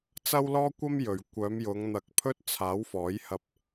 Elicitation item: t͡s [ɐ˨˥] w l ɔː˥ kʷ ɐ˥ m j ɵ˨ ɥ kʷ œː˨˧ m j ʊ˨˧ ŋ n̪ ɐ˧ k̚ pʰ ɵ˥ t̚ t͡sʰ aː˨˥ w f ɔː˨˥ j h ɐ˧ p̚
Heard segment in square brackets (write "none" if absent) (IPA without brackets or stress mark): ɐ˥